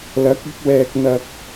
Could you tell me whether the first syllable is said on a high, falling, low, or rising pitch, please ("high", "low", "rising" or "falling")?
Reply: rising